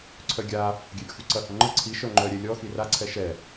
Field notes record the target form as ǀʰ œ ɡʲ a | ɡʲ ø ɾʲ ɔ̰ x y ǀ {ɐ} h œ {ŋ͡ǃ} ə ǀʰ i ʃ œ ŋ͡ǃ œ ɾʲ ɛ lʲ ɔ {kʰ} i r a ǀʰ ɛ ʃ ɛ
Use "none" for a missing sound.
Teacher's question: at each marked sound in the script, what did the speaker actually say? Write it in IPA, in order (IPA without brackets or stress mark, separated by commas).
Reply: ɐ, ŋ͡ǃ, x